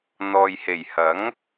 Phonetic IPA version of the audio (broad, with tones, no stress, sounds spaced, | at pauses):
n̪ ɔː˨ j h e˨˩ j h ɐ˨˥ ŋ